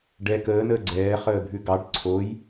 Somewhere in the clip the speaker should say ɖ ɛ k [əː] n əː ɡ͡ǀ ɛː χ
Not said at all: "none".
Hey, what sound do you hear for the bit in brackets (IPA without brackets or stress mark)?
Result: əː